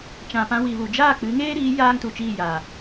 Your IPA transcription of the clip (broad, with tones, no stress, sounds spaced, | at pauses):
t͡ʃ ã˨ p ã˧ w i˨ v u˨ d͡ʒ aː˦˨ k͡p ɨ˨˦ ŋ eː˦ ɾ iː˨˦ j aː˧ ŋ t u˨ t͡ʃ iː˦˨ j aː˨